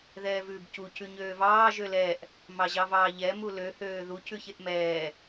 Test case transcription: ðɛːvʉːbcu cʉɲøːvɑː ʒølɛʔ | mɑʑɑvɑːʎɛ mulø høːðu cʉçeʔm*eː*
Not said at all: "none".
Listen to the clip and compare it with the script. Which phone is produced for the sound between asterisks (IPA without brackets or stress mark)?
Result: ɛː